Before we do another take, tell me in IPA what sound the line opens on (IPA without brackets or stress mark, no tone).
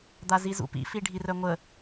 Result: d̪